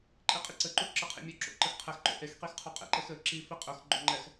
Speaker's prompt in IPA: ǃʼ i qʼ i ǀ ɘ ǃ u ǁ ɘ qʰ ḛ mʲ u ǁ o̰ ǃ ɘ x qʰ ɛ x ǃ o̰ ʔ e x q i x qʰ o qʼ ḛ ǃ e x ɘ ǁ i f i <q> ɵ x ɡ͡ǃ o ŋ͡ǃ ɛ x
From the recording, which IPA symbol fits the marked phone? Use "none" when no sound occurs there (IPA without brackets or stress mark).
qʼ